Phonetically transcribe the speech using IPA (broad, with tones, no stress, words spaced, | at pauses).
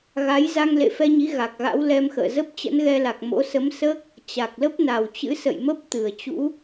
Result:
ɣa˨˦j za˧ŋlḛ˧˨fɛ˧ɲi˨˦ ɣa˨˩k̚ɣa̰˧˥wlɛ˧mxə̰ː˧˨ zə˦˥p̚t͡ɕə̰˧˥nɣɛ˧la˨˩k̚ mo̰˧˥ sə˨˦msəː˦˥k̚ | t͡ɕa˨˩k̚lə˦˥p̚ na˨˩wt͡ɕɨ̰˧˥sə̰˧˨j mə˦˥p̚t̪ɨ˧˩ə̯t͡ɕṵ˧˥